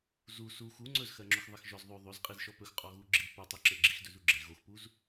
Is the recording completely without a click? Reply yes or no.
no